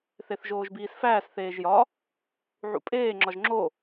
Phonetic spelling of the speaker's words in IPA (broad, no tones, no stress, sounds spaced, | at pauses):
θ e θ ʒ oː ʒ b iː s f æː s θ eː ʒ j ɒ | ʕ ṵ pʼ eː ŋ͡ǁ ɒ ʒ ŋ͡ǁ o